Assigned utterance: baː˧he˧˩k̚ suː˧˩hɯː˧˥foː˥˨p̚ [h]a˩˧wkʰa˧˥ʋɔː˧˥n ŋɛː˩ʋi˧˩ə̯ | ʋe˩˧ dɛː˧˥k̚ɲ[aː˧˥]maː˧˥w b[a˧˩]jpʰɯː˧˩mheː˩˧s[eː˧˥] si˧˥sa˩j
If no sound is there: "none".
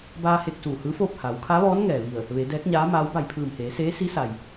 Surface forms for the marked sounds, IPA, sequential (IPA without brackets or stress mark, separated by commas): h, aː˧˥, a˧˩, eː˧˥